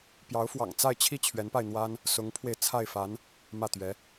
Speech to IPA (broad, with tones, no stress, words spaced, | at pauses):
pjɑ˧˥ʊ̯fwɑ̰˨˩ŋ t͡sa˥˧ɪ̯t͡ɕʰi˥˩ t͡ɕʰɥɛ˧˥npa˧ɪ̯n̪wa˥n | sʊ˧˥ŋpʰwe˧ɪ̯t͡sʰa˥˩ɪ̯fa˧˥n | mä˥˩t̪ɥɛ˧˥